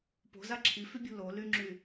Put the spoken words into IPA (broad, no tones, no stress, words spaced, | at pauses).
po̤za ǁʰifybʲṳ lolyŋ͡ǁy